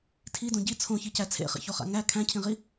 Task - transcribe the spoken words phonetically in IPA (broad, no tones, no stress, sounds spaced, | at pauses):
tʰ i d õ ɟ i t͡sʰ õ ç i c æ t͡sʰ ḛ χ ḭ ç o χ a̰ ŋ æ kʰ æ̃ cʰ ĩ ʁ i